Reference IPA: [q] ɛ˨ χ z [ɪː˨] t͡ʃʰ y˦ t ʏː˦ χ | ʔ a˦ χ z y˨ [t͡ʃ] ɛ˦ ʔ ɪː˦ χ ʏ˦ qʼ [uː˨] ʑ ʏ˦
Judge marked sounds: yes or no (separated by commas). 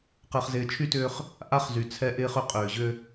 yes, yes, no, no